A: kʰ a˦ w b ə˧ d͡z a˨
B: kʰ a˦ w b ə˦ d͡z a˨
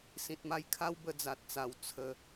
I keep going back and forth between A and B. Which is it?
A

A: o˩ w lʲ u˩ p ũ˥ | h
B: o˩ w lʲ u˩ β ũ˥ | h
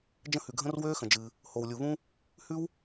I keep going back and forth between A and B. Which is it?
B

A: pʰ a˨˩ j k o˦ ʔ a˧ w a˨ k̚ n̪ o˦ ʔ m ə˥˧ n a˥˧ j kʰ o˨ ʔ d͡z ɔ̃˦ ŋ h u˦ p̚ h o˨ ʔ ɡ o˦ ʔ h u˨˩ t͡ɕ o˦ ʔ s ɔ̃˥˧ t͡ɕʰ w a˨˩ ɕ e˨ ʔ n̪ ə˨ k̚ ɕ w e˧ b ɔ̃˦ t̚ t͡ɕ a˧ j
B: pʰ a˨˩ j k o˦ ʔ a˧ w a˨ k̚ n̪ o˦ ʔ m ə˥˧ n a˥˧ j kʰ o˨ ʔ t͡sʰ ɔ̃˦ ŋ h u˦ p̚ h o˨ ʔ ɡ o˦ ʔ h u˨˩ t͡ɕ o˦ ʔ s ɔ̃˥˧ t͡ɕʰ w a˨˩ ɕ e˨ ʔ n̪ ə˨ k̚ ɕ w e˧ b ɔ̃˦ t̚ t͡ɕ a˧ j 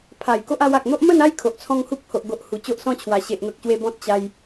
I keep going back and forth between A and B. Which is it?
B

